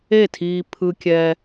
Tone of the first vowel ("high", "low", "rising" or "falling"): falling